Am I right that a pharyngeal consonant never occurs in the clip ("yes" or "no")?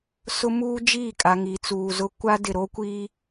yes